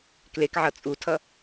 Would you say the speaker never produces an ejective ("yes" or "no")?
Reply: no